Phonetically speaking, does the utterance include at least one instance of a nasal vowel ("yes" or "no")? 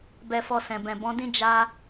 yes